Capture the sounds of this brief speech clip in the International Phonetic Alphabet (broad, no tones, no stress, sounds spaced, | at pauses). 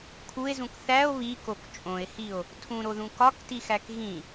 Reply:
kʰ u e̯ z ũ k θ æ o̯ β i k o k t͡ʃʼ õ e̯ h i o̯ | tʰ ũ ɾ o ð ũ k ɒ k t i x æ k ɣ ĩ